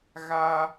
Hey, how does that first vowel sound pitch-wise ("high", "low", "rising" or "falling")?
high